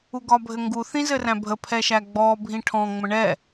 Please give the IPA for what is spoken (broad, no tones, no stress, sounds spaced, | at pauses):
u ɡ ɒ bʱ ɘ ŋ ɡ u θ ĩ z ɘ r æ̃ bʱ ə pʰ ɛ ʃ æ ɡ͡b ɔ bʱ ĩ ʈʰ ɔ̃ ŋ͡m ə̃ ɳ ɛ